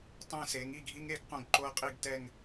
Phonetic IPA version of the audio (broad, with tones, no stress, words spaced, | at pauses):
tˤẽ˥˧se˨˥ŋi˥˧ɡʱi˥ŋ e˥ɡ qõ˥˧ɡǃo˥ɐ̯qʼi˥˧ɡ tɛ˥˧ŋ